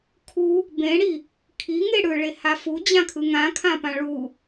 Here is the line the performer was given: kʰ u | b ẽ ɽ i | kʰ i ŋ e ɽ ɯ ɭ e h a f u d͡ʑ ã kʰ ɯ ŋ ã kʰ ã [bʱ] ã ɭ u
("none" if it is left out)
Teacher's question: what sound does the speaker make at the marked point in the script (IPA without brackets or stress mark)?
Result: p